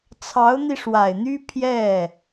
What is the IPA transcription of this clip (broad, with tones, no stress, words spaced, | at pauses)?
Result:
t͡sʰɑ˧˥ʊ̯n̪i˧ʂwa˨˩ɪ̯n̪y˥ pʰjɛ˥˩